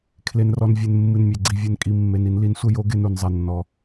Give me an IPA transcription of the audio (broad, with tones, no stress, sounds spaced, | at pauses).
kʰ l e˩ n r ɔ˩ n vʲ e˩ n mː ɨ˩ n mʲ e˩ ɡ͡ǀ i˩ vʲ e˩ n kʼ i˩ mː e˩ n i˩ n l i˩ n sʷ ə˧ j o˧ ɡ e˧ n u˩ n zˤ e˩ nː ɔ˩